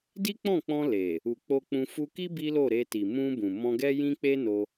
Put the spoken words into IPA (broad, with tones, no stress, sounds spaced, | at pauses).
d i˦ k͡p ɔ̃˦˨ k͡p ɔ̃˧ l e˨ | u˨ k͡p o˧ k͡p ũ˧ f u˧ k i˦ b i˦ l o˦˨ ɾ e˧ t i˨ m ũ˧ b ũ˨ m ɔ̃˧ ɡ ɛ˦ j ĩ˦ k͡p e˦ n o˧